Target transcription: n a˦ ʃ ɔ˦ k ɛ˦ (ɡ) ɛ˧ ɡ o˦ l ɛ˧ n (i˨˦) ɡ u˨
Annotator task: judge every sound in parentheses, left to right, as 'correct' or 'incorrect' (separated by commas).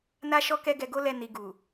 correct, incorrect